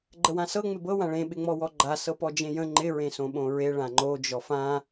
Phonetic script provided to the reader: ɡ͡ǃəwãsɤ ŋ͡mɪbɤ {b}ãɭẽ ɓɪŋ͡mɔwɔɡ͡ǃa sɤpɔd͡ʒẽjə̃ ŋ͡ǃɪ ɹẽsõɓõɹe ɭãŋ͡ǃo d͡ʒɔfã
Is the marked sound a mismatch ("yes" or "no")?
yes